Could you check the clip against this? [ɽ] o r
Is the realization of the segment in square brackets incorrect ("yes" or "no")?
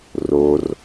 yes